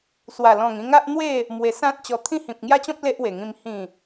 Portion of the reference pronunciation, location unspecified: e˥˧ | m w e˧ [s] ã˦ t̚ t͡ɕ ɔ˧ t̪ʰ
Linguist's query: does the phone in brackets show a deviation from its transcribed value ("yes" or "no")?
no